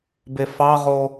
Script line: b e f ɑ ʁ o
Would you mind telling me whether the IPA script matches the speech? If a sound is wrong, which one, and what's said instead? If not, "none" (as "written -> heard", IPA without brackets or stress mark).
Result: none